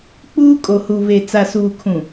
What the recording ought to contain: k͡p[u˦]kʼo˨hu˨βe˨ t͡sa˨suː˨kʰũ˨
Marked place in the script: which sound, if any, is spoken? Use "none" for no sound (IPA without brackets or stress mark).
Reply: uː˦